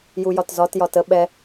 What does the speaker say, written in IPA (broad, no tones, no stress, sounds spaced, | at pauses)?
j u j ɒ t z ɒ t j ɒ t ə ɓ ɛ